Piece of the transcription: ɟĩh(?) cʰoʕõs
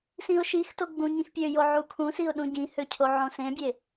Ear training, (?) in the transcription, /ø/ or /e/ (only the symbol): ø